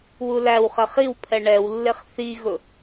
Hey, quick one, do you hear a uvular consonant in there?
yes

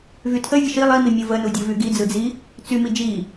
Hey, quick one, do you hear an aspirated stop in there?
yes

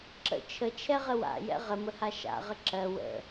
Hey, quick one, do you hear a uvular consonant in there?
yes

